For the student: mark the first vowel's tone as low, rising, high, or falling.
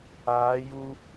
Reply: rising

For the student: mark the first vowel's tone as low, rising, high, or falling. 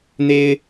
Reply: high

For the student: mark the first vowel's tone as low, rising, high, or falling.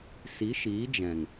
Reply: rising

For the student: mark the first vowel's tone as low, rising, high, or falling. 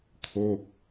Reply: falling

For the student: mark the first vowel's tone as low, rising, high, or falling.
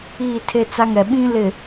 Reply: falling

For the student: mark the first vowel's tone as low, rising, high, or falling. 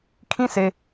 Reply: high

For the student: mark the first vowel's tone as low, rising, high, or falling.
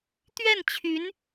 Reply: falling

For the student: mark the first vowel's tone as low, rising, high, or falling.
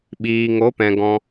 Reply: low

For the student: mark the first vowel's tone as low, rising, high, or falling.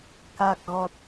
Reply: low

